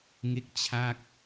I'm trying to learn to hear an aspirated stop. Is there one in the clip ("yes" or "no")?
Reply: yes